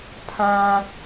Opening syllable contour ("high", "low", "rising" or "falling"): low